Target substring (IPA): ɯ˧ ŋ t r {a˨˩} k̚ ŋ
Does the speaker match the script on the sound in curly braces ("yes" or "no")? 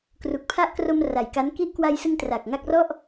yes